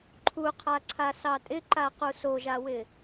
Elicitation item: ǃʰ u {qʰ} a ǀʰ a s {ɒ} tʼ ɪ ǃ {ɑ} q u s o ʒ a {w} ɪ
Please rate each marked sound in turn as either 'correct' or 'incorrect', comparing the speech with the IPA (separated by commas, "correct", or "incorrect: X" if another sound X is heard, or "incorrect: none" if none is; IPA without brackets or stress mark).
correct, incorrect: ɑ, incorrect: a, correct